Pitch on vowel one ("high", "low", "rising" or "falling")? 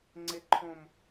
low